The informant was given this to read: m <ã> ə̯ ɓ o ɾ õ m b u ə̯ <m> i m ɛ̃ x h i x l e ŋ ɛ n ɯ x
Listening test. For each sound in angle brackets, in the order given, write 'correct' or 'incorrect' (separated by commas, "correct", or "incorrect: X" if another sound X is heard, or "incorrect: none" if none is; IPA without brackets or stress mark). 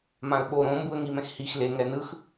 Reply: correct, incorrect: ŋ